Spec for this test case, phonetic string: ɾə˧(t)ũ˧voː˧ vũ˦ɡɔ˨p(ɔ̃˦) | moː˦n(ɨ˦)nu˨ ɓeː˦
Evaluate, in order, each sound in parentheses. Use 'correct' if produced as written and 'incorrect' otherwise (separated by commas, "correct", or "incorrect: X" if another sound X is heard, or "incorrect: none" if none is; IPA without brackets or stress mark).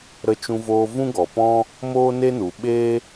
incorrect: t͡ʃ, correct, incorrect: e˦